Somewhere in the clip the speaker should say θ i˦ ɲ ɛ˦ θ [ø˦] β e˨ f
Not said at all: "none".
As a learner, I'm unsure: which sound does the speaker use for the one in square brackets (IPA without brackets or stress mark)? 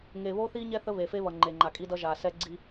ə˦